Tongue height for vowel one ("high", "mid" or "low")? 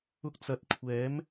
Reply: high